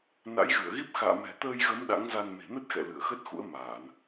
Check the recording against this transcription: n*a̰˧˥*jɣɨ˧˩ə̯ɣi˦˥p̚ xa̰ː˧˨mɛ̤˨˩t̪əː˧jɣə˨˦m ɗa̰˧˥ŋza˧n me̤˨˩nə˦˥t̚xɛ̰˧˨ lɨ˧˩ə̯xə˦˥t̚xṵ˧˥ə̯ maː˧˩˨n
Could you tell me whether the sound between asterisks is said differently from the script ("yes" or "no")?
no